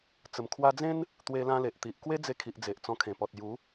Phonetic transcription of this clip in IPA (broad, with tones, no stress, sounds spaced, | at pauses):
t͡s ə˨˩ m kʰ w a˧ d͡z ẽ˦ n | t̪ w e˧ l ã˧ l e˨ ʔ t̪ i˨ ʔ k w e˦ d͡z e˧ kʰ i˨ ʔ d͡z e˨ ʔ t͡s ɔ̃˧ kʰ ẽ˨˩ p ɔ˨ t̚ j u˨˦